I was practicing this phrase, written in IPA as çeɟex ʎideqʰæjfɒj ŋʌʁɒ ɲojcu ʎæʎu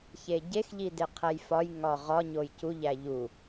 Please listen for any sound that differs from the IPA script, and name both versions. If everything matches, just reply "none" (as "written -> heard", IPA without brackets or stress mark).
ʌ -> ɒ